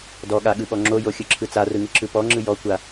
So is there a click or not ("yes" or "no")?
yes